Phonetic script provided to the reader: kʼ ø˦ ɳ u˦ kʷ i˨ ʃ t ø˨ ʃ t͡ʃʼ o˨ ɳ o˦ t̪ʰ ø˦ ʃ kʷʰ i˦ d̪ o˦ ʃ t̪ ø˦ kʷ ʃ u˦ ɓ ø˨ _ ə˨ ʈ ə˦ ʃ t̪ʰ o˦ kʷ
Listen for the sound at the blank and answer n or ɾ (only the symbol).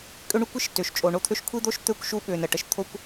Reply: n